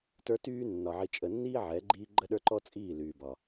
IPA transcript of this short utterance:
tə˞˦tyː˦ nːɒ˨ʕi˨ t͡ʃʼə˨nːiː˦ ʕɛ˨˦ɡ͡ǃiː˦ ɡ͡ǃə˦ɗə˞˦ǃɔ˦t͡sʼiː˦˨ lyː˨bɒ˨

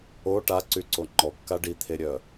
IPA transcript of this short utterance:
o ʈaǀyǀo ŋ͡ǃɔkːa ɖit̪ʰeɾʲœ

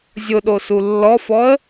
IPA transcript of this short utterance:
zʲʊɗosu lːɔfɔə̯

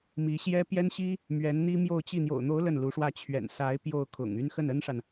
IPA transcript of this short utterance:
mi˧˥ɕjɛ˥ pjɛ˥nɕi˥ | mɥɛ˧˥nn̪i˥ mjo˥˧ʊ̯t͡ɕi˥˩ n̪jo̰˨˩ʊ̯n̪o˧˥ʊ̯ lə˥˩nlu˧˥ʂwä˥˩ t͡ɕʰɥɛ̰˨˩n sa˧˥ɪ̯ pjo˥˩ʊ̯kʰʊ̰˨˩ŋ y˥n xə˥˩nə˥nʂa˨n

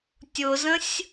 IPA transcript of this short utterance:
tʲʊzə̃sʲ

